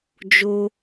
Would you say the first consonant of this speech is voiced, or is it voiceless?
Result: voiced